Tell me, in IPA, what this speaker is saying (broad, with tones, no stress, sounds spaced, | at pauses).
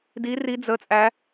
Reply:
d i˦˥ r i˦˥ d͡z ə˦˥ t͡sʼ æ˦˥